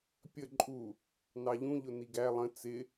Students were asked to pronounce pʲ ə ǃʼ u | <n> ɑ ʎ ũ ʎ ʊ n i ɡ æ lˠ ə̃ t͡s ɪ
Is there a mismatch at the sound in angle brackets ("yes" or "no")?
no